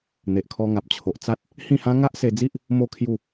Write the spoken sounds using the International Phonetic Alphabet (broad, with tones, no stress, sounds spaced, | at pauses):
n̪ e˨ ʔ kʰ ɔ˧ ŋ a˨ p̚ t͡ɕʰ o˨ ʔ t͡s a˦ t̚ | h ĩ˥˧ h ã˦ ŋ a˦ ʔ s e˧ d͡z i˦ ʔ | m o˥˧ kʰ j u˥˧